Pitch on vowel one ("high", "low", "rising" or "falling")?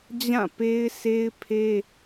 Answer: falling